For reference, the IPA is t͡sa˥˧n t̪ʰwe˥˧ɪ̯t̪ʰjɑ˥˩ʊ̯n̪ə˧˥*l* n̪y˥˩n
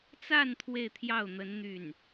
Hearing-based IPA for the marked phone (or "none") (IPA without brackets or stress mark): n